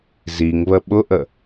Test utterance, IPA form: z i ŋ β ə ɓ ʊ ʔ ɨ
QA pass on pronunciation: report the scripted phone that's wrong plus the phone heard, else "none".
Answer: ɨ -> ə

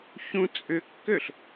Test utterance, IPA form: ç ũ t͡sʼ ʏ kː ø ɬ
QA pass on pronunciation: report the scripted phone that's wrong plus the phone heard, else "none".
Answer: none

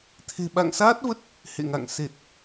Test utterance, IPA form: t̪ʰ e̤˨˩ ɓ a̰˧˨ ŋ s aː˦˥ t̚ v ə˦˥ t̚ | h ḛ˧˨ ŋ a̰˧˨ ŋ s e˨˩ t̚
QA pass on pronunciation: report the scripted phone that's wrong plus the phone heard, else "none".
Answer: none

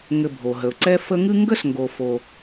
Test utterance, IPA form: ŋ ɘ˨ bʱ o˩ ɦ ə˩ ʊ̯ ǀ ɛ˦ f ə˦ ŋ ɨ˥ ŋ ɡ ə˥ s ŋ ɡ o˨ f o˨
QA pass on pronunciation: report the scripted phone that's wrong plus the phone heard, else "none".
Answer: none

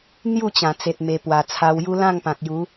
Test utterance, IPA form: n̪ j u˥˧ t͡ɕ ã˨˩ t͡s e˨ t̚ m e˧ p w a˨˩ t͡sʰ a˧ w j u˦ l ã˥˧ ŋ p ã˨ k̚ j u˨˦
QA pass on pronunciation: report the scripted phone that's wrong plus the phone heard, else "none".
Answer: none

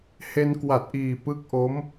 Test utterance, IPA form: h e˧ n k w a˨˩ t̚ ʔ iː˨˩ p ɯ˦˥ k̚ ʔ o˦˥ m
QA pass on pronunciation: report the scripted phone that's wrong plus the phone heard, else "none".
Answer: none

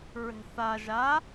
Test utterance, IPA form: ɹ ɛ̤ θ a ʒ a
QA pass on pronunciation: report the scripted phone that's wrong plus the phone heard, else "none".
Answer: none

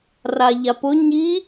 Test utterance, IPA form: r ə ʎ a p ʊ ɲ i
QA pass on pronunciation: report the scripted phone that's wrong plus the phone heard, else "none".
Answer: ə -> a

